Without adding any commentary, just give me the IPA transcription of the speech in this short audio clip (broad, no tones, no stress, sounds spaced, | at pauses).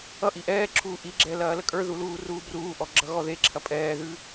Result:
ʌ ʔ i ʔ ɛː ǁʰ uː ʔ i ɡ͡ǁ ɛ l ɐː l ə kʼ ə˞ ð u l uː r uː b r uː ʔ ɔ ɡ͡ǁ ʌ ɣ ɔ ð e ǁʰ ɐ pʼ ɛː ð ʉ